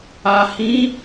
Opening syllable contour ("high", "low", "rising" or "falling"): low